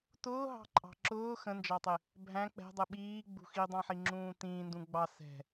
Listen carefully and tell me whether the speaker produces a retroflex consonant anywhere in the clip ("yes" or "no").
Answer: no